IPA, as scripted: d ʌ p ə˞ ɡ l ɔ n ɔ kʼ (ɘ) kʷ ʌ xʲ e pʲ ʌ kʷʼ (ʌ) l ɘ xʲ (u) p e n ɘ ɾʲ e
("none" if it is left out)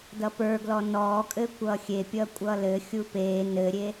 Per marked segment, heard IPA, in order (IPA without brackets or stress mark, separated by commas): ɘ, ʌ, u